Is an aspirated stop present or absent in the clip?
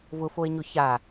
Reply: absent